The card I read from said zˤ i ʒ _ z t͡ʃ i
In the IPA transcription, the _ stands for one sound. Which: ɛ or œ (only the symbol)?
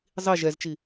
ɛ